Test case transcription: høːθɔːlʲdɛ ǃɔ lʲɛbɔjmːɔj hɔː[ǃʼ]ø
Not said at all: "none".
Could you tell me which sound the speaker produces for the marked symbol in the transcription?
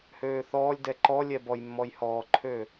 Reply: ǃʰ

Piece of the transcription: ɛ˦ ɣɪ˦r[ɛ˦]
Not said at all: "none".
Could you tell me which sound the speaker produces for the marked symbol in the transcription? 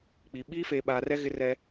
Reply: ɛ˦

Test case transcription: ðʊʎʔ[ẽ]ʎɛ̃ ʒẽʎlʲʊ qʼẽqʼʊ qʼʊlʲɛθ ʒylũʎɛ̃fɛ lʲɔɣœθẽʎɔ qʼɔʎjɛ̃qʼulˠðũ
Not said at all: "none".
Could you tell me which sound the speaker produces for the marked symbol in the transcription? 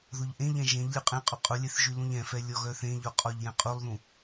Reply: ẽ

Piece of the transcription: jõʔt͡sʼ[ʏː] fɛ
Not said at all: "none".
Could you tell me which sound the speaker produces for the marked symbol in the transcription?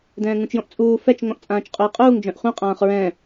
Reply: uː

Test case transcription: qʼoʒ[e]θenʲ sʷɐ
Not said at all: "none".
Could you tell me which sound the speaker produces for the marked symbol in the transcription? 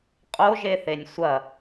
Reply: e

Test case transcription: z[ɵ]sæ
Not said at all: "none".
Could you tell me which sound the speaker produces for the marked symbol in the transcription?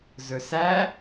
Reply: ɵ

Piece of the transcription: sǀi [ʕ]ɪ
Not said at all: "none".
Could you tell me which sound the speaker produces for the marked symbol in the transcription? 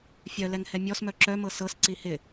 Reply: h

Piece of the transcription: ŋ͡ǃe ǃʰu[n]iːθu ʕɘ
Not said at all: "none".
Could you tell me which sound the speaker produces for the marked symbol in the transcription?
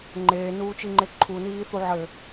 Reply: n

